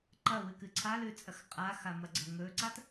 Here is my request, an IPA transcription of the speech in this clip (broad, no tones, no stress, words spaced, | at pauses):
ǃɐwɨkɨ ǀʰalʉt͡sʼɐx qʼaxamɐɡ͡ǀɐ ŋɵǀat